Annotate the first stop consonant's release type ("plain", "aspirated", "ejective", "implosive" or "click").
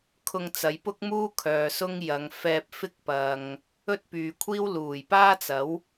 aspirated